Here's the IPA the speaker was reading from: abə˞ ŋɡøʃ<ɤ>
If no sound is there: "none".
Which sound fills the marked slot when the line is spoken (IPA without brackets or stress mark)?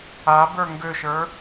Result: ə˞